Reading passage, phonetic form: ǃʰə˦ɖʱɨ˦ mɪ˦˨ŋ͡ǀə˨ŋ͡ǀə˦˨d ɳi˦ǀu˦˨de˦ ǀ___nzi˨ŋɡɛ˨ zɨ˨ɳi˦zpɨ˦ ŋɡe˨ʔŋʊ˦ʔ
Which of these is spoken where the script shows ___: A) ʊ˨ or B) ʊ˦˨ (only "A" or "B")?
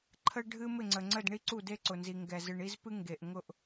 A